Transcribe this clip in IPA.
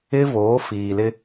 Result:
ɪ˦ v oː˨˦ f iː˨ l ɪ˦

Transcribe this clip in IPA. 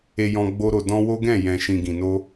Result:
e˨ j ɔ̃˨ ɡ͡b o˧ ɾ o˨ d ɔ̃˧ w o˦ ɡ ɛ̃˦˨ j ɛ̃˨ ʃ ĩ˨ ɡ ĩ˨ n o˧

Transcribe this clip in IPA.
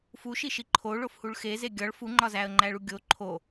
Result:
f u ʃ i ʃ i ǃʰ o ɭ o f h u ɭ x e z e ɡʲ ɒ ɭ f u ŋ͡ǃ ɒ z æ ə̯ ŋ͡ǃ æ ɭ u ɡʲ o ǃʰ o

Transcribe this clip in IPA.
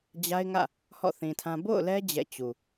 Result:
d͡ʑ a˦ ɪ̯ ŋ ä̰˦˨ | h ɔ̰˦˨ θ ĩ˨ tʰ ã˦ b o̰˦˨ ʊ̯ l ɛ˦ d͡ʑ ɛ̰˦˨ t͡ɕ u˨

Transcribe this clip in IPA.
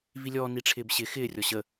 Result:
v i lʲ ɔː n i ʈ͡ʂʰ ɪː b ɕ ɪ x ɪː rʲ ɔ ɕ ə

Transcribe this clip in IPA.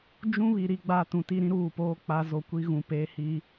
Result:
d͡ʒ ũ˦ β i˨ ɾ i˦ ɡ͡b a˦ t ũ˨ t i˦ ɾ ĩ˦ ɾ uː˦˨ p oː˦ k͡p a˦ z o˦ kʷ i˦ ɣ ũ˨ p eː˦ h i˦

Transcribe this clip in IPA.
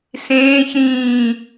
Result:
s ẽː ç ɾ ĩː

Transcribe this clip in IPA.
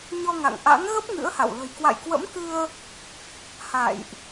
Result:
ɲ ɔ˧ ŋ a̰˧˨ ŋ ʔ a̰˧˥ ŋ ɣ ə˦˥ p̚ ŋ ɨ̰˧˥ ə̯ h a̰˧˨ w l ə̤˨˩ j k w a̰˧˨ j k w ə̰˧˥ m k ɨ˧ ə̯ | h a̰˧˨ j ʔ

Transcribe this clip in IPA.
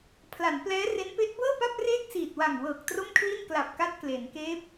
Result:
pʰ l a˩˦ n p l ɛː˦˥ r e˦˥ n p e˦˥ ʔ b ɤː˥˩ p a˥˩ p̚ r eː˥˩ k̚ s iː˨˩ t̚ w a˨˩ ŋ w ɤː˨˩ k̚ t r o˥˩ m kʰ l i˥˩ n k l a˨˩ p̚ k a˦˥ t̚ k l e˩˦ n k eː˦˥ p̚

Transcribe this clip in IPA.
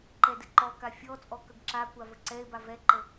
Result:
ǃ ɛ d ɘ ǃ ɔ k a fʲ ɔ t͡sʼ ɔ k ə ɡ ǁ a kʷ a v ə ǀ ɛ e̯ b a v ɛ ǃ ə

